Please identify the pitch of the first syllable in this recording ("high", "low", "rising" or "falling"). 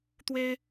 high